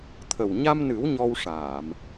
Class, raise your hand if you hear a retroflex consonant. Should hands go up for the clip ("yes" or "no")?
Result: yes